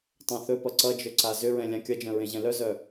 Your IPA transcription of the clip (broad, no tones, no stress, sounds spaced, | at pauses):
tˤ œ̃ θ ɵ p ʌ ǀ ʌ d͡ʒ ɵ ǀ a z ʏ ɹ ɛ̃ lʲ ã kʲ ʌ d͡ʒ œ̃ ɹ ẽ ʑ ɛ̃ l œ z œ